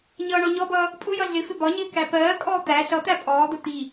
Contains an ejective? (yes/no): yes